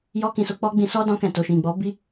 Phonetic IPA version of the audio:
j ɔ˦ k ĩ˧ s o˧ k͡p ɔ˦ ɡ͡b ĩ˧ s ɔ˦ d ɔ̃˧ k ɛ̃˨ t o˨ ʃ ĩ˨ ɡ͡b ɔ˨˦ b i˦

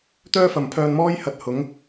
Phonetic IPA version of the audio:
t̪ œː˥ f ɐ˨ m pʰ œː˧ n m ɔː˥ j h ɐ˧ t̚ h ʊ˨˥ ŋ

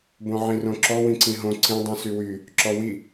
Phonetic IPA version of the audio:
b õ ʕ ĩ r õ ǁ ɔ w ĩ ǀ ĩ ɦ õ ǀ ĩ dˤ ĩ s y w y | ǁ ɔ w i

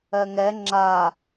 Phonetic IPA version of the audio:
ɜ ŋ ɛ ŋ͡ǁ a

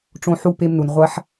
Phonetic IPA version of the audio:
ʈ͡ʂ õ˧ ħ u˧ p e˧ m n u˨ n ʁʷ a˦ ħ

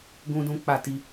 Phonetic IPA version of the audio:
ɡ ũ˦ d ũ˦ k͡p a˦˨ t i˧

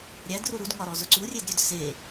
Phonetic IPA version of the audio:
ɾʲ æ d r u ɾ u d ŋ ɒ ɾ ɔ z ʊ ǀ u rʲ e d ɾʲ ø d s e

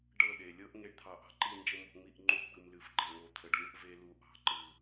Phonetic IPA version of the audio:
ɖ ɤ˦˨ ɗ e˨ lʲ ɤ˦ ʔ ŋ e˧ ɖ t̪ʰ ɑ˨ ʔ ɑ̤˧ ǃ i˦˨ n d͡ʒ ə˦˨ m o̤˧ ŋ͡m i˦˨ ʔ ŋ͡ǃ u˧ ɡ͡b ɯ˨ m l ɨ˨ f ɡ͡ǃ e˨ ŋ o˨ t̪ʰ ə˨ ɖ lʲ ɤ˦ ʔ v e˧ l u˨˦ ʔ ɑ̤˨˦ ǃ ɯ˨

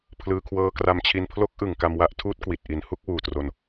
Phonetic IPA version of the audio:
pʰ l ɯː˧ kʰ w ɤː˦˥ k r a˧ m t͡ɕʰ i˧ n pʰ l o˦˥ k̚ ʔ ɯ˨˩ ŋ k a˧ m w a˦˥ ʔ tʰ uː˦˥ t̚ k w i˨˩ t̚ ʔ i˩˦ n h u˥˩ k̚ w uː˨˩ t r o˧ n

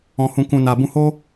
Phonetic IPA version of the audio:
ɔ̃˧ h ũ˧ k ũ˨ n a˨ b ũ˧ h o˦

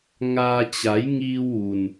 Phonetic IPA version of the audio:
ŋ aː˧ t͡ɕ a˩˧ j ŋ iː˧ w ʋ u˩ n

